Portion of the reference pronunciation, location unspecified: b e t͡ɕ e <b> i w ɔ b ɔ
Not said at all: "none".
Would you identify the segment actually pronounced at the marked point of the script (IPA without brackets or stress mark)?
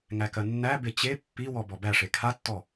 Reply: pː